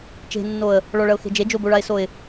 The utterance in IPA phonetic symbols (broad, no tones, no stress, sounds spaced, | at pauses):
t͡ʃ e̤ nː o ə̯ | ɭ ɔ ɭ ɐ ʊ̯ x e̤ d͡ʒ e d͡ʒ o b o ɭ a ɪ̯ s o ɪ̯